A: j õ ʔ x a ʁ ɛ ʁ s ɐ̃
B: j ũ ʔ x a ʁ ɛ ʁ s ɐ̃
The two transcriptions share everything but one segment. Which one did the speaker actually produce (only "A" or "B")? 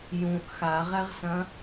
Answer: B